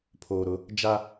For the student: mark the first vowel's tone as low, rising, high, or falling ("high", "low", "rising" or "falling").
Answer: low